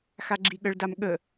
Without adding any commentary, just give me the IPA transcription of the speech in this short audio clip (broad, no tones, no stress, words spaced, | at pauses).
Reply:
xaɡ͡ǁiɠəɭdam ɠə